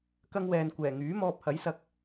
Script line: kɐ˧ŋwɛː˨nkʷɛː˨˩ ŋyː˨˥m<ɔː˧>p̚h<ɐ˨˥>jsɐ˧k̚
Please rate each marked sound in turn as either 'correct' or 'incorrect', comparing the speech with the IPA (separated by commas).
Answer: correct, correct